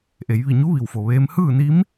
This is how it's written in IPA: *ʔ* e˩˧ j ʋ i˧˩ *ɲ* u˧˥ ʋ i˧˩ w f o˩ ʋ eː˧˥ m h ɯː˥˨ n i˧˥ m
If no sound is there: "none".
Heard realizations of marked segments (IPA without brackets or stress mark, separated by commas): ʔ, ɲ